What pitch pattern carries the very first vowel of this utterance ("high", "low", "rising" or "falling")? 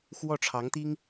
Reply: falling